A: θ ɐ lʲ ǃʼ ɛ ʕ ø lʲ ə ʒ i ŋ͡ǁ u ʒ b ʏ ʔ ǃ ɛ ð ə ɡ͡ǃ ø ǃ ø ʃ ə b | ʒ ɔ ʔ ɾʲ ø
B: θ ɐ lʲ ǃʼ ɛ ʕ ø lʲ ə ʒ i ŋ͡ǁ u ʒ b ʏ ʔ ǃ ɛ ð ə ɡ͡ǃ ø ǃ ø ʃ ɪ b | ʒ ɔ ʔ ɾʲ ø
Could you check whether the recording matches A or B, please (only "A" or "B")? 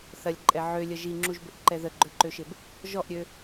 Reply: B